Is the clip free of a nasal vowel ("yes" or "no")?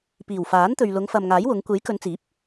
yes